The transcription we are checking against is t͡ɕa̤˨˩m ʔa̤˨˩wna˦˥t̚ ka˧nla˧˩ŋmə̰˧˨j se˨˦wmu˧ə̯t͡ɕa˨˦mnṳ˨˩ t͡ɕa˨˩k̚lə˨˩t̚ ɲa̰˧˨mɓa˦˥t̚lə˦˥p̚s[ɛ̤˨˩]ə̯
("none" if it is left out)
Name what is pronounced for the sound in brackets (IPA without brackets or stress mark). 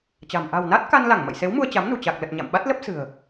ɨ̤˨˩